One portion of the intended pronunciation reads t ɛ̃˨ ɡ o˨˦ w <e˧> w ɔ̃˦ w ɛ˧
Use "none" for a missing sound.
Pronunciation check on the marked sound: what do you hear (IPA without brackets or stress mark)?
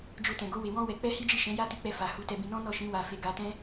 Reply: e˧